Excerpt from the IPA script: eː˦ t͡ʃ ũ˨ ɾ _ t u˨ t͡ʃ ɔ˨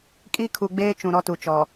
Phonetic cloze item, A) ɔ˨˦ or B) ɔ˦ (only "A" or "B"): B